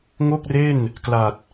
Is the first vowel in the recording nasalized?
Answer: no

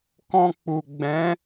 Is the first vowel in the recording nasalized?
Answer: yes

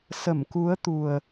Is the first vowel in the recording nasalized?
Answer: no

